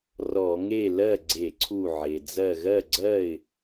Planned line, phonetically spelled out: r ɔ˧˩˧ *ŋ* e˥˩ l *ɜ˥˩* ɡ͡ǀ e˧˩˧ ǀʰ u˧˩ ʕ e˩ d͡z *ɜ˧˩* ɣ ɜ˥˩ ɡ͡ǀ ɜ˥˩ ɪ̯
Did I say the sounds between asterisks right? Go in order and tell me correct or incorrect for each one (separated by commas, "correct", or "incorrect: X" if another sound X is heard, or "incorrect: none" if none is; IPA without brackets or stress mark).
correct, correct, correct